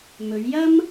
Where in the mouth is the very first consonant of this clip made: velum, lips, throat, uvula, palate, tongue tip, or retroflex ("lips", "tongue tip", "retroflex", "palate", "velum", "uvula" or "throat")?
lips